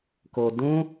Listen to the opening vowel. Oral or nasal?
oral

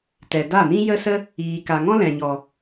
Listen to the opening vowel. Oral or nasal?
oral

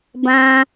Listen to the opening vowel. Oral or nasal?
nasal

